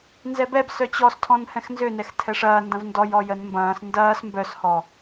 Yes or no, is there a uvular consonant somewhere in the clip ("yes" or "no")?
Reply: no